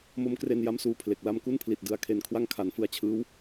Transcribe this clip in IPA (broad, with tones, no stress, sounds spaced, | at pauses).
m o˦˥ m k r e˧ n j a˥˩ m s uː˦˥ pʰ l e˨˩ k̚ l a˧ m k u˥˩ n pʰ l i˨˩ t̚ d ɯ˨˩ a̯ kʰ e˨˩ n kʰ w a˥˩ ŋ kʰ a˩˦ n f ɯ˧ a̯ t͡ɕʰ ɯː˦˥ w